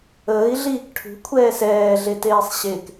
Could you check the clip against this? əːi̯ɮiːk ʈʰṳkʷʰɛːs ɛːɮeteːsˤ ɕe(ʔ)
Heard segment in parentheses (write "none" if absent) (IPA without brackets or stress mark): k